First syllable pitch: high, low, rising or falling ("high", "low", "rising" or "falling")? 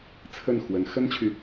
falling